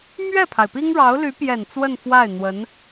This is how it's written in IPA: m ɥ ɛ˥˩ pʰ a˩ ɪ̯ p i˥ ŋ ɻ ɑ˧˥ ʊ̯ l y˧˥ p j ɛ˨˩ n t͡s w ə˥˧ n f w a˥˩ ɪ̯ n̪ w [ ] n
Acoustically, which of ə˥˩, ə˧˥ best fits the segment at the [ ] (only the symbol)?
ə˧˥